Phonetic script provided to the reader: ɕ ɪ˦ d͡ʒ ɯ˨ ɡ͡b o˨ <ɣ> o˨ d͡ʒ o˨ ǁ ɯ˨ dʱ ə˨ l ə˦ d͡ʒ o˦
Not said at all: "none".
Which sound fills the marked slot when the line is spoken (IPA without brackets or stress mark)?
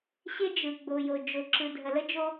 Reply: j